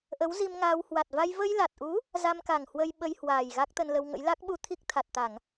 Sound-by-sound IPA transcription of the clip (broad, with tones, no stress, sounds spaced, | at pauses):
ʔ ə˨˦ w z i˧ m ŋ aː˧ w h w a˨˩ t̚ v a˧ j v ə˧ j l a˨˩ t̚ ʔ u˨˦ | z a˧ m k a˨˩ ŋ h w ə˧ j ɓ ə˧ j h w aː˨˩ j ɣ a˦˥ k̚ t̪ ə˧ n l ə˧ w ŋ ə̰˧˥ j l a˦˥ k̚ ɓ u˧ t̪ʰ i˦˥ k̚ t̪ʰ a˨˩ t̚ t̪ a˧˩˨ ŋ